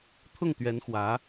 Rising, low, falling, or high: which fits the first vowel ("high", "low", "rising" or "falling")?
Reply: falling